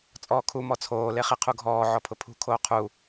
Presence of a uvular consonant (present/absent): present